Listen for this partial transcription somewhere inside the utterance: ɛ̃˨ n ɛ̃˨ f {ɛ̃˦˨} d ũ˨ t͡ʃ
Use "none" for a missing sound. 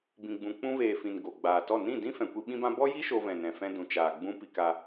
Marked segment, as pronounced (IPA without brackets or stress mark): ɛ̃˧